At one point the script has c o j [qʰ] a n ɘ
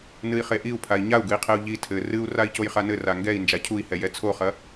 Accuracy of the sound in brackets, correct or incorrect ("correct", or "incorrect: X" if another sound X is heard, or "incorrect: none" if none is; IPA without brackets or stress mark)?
incorrect: χ